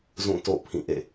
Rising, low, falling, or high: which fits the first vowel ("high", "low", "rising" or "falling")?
falling